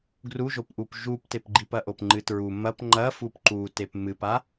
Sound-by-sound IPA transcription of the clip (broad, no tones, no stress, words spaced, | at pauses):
ɡruʒopʔup ʒuptepɡ͡ǃip ɐʔopŋ͡ǃɨtɹu mɐp ŋ͡ǃɐfup ǃutep mɨpa